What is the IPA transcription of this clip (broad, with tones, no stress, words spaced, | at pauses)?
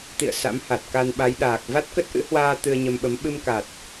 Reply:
t̪ḭ˧˨ə̯ sa̰˧˥mha˨˩t̚ ka˧nɓa˨˦jɗaː˨˩k̚ va˦˥t̚kə˦˥t̚ʔɨ̰˧˥hwaː˧ t̪ɨ˧ə̯ɲə˧mɓə˨˦m ɓɨ˧mka˨˩t̚